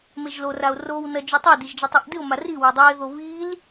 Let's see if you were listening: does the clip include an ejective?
no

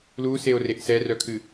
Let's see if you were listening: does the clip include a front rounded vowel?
yes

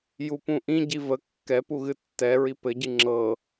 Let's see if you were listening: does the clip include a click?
yes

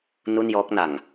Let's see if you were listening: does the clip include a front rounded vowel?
no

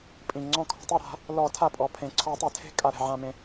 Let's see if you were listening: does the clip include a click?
yes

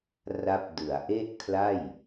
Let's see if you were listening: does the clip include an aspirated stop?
yes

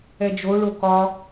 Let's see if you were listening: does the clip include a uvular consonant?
no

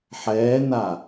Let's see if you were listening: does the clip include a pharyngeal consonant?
yes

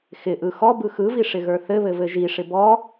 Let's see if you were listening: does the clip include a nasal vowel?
no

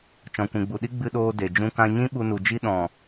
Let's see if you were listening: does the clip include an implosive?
yes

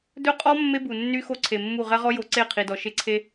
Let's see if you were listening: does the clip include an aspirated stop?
yes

